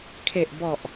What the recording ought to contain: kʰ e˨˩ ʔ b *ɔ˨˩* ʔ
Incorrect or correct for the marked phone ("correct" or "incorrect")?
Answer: correct